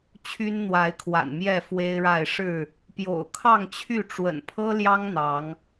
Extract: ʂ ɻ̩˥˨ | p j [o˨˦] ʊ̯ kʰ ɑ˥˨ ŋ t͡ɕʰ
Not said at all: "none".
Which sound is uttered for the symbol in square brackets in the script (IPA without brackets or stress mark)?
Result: o̰˨˩